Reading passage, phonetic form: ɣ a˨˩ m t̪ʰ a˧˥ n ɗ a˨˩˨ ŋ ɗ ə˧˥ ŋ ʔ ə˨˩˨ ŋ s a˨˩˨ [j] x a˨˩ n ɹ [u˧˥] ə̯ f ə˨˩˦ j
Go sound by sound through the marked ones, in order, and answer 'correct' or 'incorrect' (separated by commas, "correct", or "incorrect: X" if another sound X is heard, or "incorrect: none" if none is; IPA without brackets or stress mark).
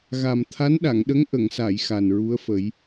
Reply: correct, correct